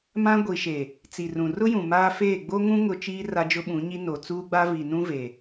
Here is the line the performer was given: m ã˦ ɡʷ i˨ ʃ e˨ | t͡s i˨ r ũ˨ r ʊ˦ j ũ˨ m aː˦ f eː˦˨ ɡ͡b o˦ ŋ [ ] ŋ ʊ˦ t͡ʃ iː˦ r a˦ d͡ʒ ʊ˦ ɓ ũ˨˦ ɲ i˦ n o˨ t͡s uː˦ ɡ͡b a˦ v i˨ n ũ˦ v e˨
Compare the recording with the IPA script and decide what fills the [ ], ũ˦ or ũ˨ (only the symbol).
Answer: ũ˦